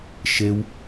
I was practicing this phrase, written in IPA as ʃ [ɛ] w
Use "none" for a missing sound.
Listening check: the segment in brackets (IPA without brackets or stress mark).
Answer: e